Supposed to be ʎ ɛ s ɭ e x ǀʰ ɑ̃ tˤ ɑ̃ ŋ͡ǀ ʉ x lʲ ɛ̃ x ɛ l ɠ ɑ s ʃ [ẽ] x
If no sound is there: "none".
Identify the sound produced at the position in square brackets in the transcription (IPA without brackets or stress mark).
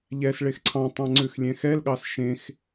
ẽ